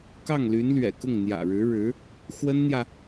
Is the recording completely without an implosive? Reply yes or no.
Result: yes